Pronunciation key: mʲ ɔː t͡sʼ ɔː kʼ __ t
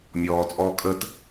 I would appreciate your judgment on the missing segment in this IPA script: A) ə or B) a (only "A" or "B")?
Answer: A